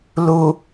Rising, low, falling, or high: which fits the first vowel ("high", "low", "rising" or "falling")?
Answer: low